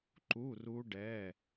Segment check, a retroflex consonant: present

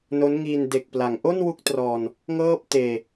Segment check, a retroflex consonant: absent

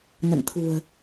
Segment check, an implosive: absent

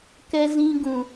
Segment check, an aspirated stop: absent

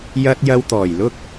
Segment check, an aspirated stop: absent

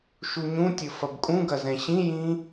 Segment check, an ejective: present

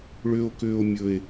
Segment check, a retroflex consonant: present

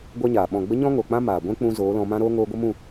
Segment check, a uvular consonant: absent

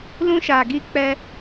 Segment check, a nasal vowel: present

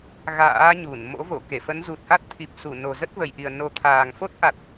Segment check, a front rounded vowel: absent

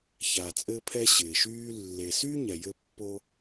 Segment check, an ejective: present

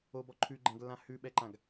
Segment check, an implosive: present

